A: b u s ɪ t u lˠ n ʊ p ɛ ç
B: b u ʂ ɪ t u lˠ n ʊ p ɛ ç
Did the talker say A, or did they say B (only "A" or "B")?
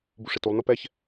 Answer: B